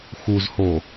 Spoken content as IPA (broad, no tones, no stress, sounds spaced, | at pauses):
x u z h o